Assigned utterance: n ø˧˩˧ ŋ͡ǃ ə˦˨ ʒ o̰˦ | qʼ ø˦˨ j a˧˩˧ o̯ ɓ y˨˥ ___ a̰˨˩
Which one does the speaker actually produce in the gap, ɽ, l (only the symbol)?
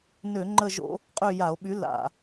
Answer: l